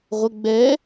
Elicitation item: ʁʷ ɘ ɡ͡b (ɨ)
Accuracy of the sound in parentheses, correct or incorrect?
incorrect